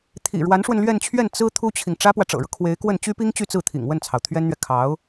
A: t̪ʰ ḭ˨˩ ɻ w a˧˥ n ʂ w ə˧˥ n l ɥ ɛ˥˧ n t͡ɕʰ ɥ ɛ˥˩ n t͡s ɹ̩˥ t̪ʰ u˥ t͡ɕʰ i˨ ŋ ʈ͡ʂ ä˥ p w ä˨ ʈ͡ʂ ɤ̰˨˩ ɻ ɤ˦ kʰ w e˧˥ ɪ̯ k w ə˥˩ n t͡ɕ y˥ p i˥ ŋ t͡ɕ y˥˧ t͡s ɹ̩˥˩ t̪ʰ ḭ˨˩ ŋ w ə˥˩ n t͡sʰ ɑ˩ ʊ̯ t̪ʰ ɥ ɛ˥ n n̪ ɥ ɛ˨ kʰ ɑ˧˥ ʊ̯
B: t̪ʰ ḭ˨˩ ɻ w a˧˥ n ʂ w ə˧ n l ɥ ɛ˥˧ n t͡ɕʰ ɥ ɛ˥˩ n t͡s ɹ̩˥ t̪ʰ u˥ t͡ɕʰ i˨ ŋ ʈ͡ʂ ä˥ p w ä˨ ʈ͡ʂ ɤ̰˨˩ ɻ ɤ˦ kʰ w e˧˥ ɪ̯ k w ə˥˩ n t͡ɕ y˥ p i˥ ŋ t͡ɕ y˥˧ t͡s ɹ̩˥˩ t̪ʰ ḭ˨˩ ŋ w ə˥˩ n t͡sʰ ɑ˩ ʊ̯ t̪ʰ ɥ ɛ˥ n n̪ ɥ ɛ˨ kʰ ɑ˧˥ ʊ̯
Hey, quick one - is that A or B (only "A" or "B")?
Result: B